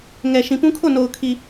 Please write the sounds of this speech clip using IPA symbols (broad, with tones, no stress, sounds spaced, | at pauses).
ŋ ɛ˨ ʃ ĩ˨ p ũ˦ kʰ o˦˨ n o˨ ʊ̯ kʰ i˨